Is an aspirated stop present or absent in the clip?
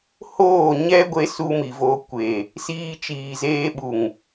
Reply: absent